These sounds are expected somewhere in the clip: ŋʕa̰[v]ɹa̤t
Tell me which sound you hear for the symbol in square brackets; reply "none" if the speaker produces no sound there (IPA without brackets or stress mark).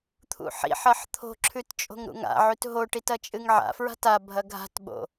f